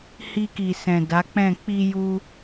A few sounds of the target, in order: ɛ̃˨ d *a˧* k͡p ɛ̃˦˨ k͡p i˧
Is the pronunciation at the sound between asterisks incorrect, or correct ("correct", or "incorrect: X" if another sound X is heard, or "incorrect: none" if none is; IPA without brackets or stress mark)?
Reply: incorrect: a˨˦